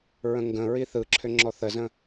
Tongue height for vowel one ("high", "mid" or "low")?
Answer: mid